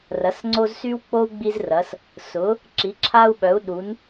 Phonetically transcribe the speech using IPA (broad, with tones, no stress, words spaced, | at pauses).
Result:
rɐ˨˥s ŋ͡ǀo˥z sy˥wk͡po˥u̯ ɡ͡bi˥zrɐ˨˥s | sʊ˨˥ | ǁi˨˥ǁʰa˥u̯ɓœ˨˥u̯ ɗu˨˥n